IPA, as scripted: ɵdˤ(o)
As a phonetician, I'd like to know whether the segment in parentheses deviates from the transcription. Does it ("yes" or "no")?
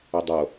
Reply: no